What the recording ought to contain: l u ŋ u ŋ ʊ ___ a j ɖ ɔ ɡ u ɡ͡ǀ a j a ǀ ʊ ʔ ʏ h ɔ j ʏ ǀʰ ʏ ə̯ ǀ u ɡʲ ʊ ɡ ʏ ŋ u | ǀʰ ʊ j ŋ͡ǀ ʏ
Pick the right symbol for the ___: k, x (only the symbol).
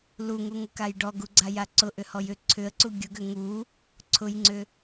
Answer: k